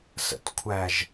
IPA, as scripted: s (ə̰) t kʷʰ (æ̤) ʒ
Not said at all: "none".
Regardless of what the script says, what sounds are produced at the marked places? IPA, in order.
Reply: ə̰, æ

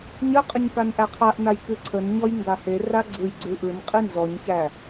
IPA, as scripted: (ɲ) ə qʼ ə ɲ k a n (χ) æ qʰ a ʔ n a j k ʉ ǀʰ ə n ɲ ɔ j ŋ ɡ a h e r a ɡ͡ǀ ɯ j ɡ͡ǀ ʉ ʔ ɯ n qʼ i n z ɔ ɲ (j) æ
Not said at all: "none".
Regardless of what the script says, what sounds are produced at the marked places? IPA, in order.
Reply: ɲ, ʔ, ç

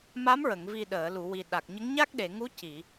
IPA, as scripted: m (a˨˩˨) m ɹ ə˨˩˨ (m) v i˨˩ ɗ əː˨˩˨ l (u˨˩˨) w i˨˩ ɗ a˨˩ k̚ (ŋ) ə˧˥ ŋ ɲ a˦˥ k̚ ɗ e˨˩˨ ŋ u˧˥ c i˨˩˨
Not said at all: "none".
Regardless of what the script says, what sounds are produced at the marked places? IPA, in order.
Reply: a˧˥, ŋ, u˨˩˨, ɲ

